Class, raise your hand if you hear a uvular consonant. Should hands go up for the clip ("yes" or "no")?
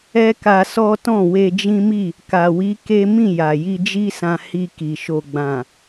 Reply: no